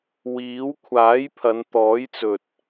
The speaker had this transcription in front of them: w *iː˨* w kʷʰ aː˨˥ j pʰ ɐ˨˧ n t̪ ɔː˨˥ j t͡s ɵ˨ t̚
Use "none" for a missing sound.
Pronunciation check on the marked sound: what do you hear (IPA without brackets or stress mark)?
iː˨˥